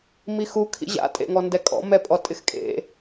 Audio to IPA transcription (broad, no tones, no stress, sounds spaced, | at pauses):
m i x u kʰ ḭ ʑ a̰ tʼ ḛ ŋ ɔ n d ɛ kʼ ɔ̰ m ɛ pʼ ɔ tʼ ɪ x kʼ ḛ